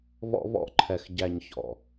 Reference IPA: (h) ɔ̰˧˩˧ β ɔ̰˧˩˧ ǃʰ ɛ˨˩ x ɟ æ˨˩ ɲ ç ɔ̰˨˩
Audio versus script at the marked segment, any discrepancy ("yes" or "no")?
yes